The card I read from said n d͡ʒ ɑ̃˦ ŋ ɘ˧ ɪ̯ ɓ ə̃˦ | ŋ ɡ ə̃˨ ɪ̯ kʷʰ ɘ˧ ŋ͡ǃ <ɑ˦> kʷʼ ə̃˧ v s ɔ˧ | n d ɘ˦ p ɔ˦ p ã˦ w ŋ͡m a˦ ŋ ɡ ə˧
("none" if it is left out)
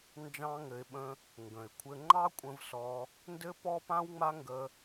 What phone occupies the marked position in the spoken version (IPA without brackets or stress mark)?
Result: ɑ˦